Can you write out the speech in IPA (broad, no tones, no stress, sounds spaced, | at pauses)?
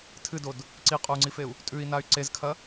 tʰ ɨ d o d | ǀ i qʼ o u̯ ŋ͡ǀ i f e u̯ | tʼ ʉ i̯ n a y̯ ǀ e z kʰ ɐ